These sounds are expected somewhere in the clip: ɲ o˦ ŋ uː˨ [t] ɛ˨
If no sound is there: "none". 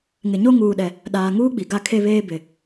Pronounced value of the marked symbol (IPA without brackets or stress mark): ɗ